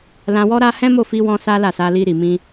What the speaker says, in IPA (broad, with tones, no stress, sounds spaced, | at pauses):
l ã˧ w ɔ˦ ɾ a˦ h ɛ̃˦ m o˦˨ f i˧ w ɔ̃˧ s a˦ l a˦˨ s a˧ l i˧ ɾ i˨ m ĩ˧